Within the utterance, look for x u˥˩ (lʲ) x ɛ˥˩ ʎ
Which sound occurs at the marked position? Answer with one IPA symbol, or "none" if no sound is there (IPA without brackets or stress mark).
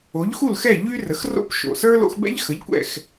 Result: l